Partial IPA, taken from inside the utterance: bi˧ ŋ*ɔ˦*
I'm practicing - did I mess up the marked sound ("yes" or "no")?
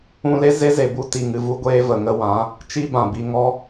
no